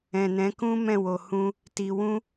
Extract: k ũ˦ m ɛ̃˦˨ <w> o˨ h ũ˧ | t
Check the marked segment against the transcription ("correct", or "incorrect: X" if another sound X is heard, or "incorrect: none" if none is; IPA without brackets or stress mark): correct